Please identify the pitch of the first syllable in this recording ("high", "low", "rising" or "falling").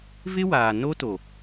high